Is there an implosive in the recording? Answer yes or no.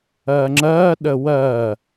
yes